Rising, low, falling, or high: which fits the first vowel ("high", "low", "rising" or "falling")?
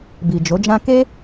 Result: low